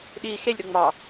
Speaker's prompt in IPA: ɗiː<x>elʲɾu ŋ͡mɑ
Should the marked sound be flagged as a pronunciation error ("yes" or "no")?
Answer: no